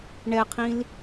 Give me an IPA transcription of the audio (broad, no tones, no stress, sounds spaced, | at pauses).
ɳ ɛ qʰ ĩ l